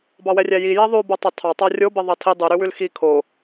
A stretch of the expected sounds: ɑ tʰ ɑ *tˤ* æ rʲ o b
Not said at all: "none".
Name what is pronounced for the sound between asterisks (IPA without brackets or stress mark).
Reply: tˤ